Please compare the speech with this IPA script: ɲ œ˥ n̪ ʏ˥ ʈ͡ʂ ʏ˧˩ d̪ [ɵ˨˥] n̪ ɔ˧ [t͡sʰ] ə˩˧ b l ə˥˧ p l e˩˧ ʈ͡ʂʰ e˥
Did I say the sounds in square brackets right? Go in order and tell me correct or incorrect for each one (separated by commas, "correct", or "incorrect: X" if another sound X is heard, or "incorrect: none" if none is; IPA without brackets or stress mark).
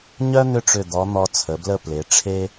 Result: incorrect: ɔ˨˥, correct